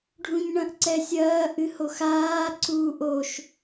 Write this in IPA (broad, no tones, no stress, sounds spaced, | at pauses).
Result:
ɖʱ ũ ɲ ɳ ɐ̃ ʔ ǀ ɛ sʲ ɐː ʔ ɨ h o x aː ǀ uː ʔ o ʃ